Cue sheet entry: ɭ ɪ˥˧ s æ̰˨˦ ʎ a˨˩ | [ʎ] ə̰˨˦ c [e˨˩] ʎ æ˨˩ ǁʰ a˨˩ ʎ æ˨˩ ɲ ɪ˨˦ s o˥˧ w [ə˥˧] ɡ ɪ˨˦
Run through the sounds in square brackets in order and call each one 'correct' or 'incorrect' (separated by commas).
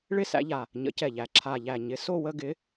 incorrect, incorrect, correct